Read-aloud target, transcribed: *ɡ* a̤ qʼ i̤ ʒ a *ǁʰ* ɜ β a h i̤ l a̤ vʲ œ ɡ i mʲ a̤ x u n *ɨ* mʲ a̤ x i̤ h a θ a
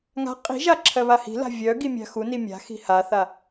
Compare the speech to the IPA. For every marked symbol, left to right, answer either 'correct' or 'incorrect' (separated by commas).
incorrect, correct, incorrect